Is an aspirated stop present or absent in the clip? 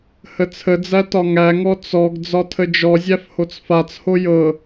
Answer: present